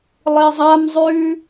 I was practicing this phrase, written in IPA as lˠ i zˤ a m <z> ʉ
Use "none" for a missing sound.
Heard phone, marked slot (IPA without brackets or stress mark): zˤ